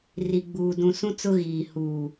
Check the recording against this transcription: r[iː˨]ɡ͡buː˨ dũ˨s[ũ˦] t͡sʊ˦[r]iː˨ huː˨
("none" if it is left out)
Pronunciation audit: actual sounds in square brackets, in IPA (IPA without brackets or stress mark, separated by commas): i˨, ũ˦, ɣ